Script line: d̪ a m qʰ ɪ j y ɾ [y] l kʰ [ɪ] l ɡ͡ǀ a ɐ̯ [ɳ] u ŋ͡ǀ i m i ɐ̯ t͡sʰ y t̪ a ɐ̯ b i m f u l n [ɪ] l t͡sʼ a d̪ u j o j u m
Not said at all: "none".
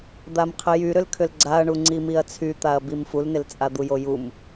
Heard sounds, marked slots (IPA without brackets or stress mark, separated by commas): ʏ, ʏ, ɳ, ɪ